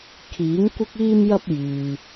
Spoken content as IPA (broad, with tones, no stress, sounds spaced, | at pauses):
kʰ iː˨˥ ŋ kʷ ɪ˥ k̚ iː˥ m j ɐ˥ p̚ j yː˨